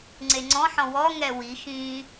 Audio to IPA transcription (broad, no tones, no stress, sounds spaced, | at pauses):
ŋ͡ǀ e ŋ͡ǀ ɔ̃ ħ ɔ̃ w ɔ ŋ ɛ w i x ĩ